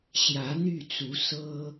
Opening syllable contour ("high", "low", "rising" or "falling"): rising